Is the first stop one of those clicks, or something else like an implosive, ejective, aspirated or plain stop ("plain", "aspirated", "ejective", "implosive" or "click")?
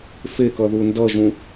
plain